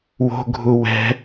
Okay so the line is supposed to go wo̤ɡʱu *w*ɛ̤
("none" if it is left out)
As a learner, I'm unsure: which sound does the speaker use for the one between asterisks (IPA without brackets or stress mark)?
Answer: w